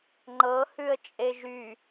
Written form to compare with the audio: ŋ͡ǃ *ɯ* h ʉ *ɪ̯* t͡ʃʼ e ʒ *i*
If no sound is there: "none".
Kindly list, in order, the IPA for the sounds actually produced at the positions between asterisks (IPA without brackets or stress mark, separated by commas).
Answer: ɤ, ə̯, y